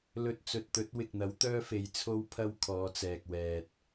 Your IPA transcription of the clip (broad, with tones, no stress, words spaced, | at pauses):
lɵ˧t̚ t͡sɵ˨t̚t̪ɵ˨˥t̚ wɪ˨k̚n̪ɐ˨˥wt̪œː˥fe˨˧j t͡sʰo˥wpʰɐ˥wkʰɔː˨˧t͡sɛː˨k̚ wɛː˨t̚